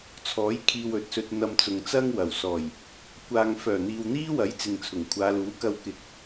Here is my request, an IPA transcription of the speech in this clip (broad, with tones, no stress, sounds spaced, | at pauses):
t͡sʰ ɔː˨˥ j kʰ iː˧ w ɵ˨ t̚ s ɵ˧ t̚ n̪ ɐ˧ m t͡s ʊ˨ ŋ t͡s ɐ˥ ŋ w ɐ˨˩ w s ɔː˨˩ j | kʷ aː˧ ŋ f œː˨˩ n̪ iː˨ w n̪ iː˥ w ɐ˨˥ j t͡s ɪ˨ ŋ t͡sʰ ʊ˨˩ ŋ kʷʰ aː˨˧ l uː˨˥ k ɐ˧ w k ɪ˨˥ k̚